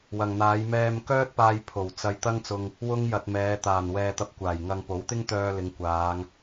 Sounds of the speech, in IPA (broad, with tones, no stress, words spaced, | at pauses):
wɐ˨ŋn̪aː˨˧j mɛː˧mkœː˥t̚paː˧j pʰo˨˩wt͡sɐ˧j t̪ɐ˥ŋt͡sʊ˧ŋ | wʊ˥ŋjɐ˧t̚ mɛː˨˧t̪aː˨˩nwɛː˧ t̪ɐ˧p̚kʷaː˨˩jŋɐ˧ŋpo˨˥w t̪ɪ˥ŋt̪œː˧ lɪ˨˧ŋkʷaː˨˧ŋ